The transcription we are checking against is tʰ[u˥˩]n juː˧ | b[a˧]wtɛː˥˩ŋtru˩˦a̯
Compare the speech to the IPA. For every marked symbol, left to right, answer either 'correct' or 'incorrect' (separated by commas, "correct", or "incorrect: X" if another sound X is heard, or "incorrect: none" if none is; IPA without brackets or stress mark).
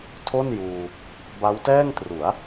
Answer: incorrect: o˥˩, incorrect: a˦˥